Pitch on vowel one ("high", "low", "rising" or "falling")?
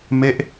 falling